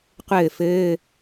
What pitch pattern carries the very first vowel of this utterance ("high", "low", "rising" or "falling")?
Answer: falling